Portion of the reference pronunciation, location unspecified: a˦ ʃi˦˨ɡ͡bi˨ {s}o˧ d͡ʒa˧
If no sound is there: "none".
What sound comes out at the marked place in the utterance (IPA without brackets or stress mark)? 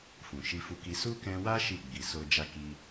s